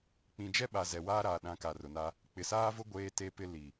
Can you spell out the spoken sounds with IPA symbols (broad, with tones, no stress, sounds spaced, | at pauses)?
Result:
k͡p ĩ˨ d͡ʒ ɛ˦ ɓ a˨ z ɛ˨ w aː˦ ɾ aː˨ ɗ ã˨˦ k a˨ r ʊ˨ n a˦ | k͡p ɪ˨ s aː˦ v ʊ˦ ɡʷ eː˦ t e˦ p ɪ˦ l i˨